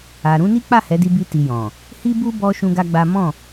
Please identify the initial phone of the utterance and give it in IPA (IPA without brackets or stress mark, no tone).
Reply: a